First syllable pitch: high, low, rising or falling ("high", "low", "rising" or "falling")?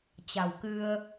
low